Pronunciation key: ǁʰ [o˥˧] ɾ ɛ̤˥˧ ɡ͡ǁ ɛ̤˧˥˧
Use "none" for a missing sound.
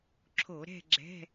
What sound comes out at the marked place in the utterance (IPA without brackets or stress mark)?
o˧˩˧